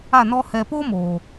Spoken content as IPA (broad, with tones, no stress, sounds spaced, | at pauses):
a˦˨ n ɔ˦ h ɛ˧ p o˦ m oː˨